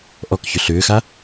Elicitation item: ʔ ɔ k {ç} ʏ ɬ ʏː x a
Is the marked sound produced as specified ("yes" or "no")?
yes